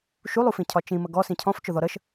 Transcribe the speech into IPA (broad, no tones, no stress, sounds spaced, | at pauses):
ʃ u lˠ u f ĩ cʰ ɒ t͡ʃ ĩ m ə ɡ ɔ s ĩ cʰ ɔ̃ f t͡ʃ ʊ ð ɔ ɾ ə ʃ